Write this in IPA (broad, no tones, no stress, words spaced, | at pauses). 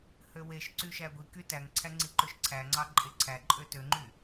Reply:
høweʃǀy ʃæɡʷiky tæŋǀʰæ ŋ͡ǀiǃøʃǀʰæŋ͡ǀɑ ǃʼeǀʰæǃʼø tøŋ͡ǃy